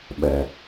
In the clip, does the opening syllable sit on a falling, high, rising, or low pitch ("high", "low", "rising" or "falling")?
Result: low